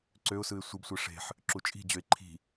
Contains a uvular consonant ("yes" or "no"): no